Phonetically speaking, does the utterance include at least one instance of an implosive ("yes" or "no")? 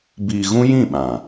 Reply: yes